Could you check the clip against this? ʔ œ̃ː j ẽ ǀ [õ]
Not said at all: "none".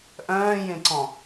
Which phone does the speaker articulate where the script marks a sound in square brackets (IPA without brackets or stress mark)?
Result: ɔ̃